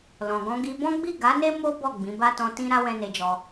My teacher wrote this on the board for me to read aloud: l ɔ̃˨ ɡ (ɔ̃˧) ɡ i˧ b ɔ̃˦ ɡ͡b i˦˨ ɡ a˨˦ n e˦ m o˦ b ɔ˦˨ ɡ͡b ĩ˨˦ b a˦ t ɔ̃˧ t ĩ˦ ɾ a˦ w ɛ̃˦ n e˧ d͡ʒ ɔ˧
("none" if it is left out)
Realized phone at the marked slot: ɔ̃˧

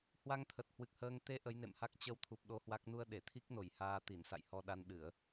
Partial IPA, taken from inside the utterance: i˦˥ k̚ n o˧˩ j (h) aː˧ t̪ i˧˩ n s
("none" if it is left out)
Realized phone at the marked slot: h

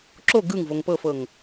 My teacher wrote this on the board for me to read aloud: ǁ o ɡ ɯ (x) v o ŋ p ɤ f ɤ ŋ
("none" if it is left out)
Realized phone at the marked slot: ŋ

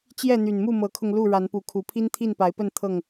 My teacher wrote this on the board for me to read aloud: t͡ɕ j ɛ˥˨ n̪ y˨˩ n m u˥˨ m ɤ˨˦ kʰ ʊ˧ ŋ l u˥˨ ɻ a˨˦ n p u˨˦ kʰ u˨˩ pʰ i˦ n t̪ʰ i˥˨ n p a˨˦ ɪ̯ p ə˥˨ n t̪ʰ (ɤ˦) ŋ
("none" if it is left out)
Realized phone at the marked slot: ɤ˥˨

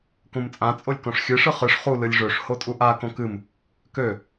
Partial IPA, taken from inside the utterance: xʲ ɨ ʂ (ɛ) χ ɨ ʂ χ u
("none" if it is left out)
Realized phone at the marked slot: ɨ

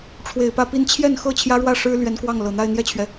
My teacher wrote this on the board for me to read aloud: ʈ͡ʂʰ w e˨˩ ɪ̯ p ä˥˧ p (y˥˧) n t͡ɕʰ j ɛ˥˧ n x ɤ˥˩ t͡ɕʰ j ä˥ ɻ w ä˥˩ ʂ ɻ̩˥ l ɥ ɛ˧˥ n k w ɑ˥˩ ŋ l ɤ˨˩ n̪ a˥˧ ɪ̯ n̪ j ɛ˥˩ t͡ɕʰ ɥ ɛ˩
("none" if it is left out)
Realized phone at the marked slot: i˥˧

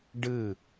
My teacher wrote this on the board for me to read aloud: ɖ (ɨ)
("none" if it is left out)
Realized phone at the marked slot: ɨ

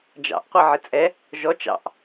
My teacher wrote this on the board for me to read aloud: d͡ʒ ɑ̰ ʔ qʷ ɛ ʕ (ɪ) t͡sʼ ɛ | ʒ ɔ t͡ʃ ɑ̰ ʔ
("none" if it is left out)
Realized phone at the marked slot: ɪ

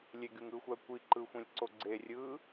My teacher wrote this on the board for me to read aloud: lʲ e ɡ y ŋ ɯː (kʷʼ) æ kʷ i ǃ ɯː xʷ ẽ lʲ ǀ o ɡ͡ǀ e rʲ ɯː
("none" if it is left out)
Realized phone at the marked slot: xʷ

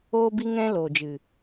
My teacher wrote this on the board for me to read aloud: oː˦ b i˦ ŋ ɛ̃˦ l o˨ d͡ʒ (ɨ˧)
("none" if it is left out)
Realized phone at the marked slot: ɨ˨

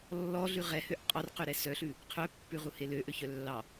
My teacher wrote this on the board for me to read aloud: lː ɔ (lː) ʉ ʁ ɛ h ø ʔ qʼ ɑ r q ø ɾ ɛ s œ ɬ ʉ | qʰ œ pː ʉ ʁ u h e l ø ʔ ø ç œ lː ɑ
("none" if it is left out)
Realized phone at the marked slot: ɮ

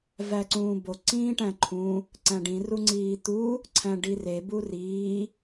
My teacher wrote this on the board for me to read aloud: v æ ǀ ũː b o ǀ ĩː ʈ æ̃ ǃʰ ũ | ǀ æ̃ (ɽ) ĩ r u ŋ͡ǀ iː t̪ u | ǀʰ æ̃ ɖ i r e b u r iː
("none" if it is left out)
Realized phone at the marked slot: ɖ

